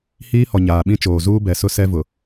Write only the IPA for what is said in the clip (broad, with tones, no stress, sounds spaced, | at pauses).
h iː˦ h ɔ˨ ɲ aː˨ ɓ ĩ˦ t͡ʃ oː˨ z uː˦ b ɛ˨ s ʊ˦ s ɛ˦ v ʊ˨